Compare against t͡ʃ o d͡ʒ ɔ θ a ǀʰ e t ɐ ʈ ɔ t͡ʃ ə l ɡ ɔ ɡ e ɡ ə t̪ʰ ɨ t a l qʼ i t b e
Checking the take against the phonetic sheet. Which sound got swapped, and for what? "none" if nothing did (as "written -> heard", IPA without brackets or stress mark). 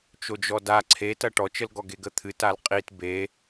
θ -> d